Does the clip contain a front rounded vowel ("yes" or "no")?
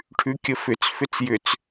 yes